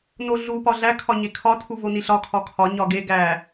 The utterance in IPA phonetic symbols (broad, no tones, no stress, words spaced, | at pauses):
noɮu pɒɮæ kʰɒɲekʰɒ tʰuvoniɬɒ kʰɒkʰɒ ɲɒɡe ɡæ